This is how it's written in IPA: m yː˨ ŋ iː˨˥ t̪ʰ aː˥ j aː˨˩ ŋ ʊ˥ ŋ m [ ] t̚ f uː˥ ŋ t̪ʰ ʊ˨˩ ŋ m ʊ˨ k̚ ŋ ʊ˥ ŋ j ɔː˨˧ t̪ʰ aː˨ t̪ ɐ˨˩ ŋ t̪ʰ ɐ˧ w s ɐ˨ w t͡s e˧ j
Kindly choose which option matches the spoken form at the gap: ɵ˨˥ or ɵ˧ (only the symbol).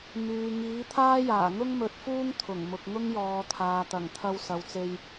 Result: ɵ˨˥